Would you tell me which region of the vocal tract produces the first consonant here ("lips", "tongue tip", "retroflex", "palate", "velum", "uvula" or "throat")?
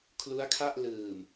velum